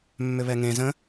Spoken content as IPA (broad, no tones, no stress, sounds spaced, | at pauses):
mː ʏ β ɛ ŋ ẽ z ə̃